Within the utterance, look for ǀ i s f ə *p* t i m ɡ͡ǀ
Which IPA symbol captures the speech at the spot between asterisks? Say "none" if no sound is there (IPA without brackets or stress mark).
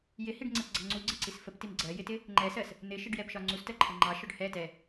p